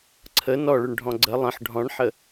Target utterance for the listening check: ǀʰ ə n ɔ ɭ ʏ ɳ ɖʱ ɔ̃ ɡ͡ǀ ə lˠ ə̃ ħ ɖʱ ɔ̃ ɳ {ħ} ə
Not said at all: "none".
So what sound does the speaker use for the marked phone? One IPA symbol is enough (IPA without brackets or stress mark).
ħ